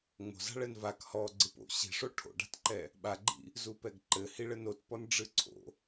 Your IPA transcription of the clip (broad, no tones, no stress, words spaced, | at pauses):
ŋ͡mo̤za̤ ɭɛnvak hɔ ɡ͡ǀɨpo̰ ɕi̤ʂo ʈʰo̰ɖa̤tǃɛ | ɓaɡ͡ǃḭ | zupɛɡǃɘ hiɭɘnotpɔn ɖ͡ʐɨǀʰo̰